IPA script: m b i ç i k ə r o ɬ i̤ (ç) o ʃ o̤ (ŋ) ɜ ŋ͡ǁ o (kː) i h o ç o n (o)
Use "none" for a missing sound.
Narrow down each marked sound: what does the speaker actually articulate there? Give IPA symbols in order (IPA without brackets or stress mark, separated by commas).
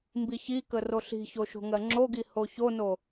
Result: ç, ŋ, ɡ, o